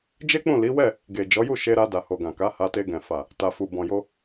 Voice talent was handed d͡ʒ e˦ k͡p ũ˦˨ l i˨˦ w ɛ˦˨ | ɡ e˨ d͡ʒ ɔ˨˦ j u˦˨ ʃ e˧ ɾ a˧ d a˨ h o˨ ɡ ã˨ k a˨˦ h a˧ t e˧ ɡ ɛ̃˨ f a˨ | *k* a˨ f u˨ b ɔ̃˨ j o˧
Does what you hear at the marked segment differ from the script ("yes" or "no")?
yes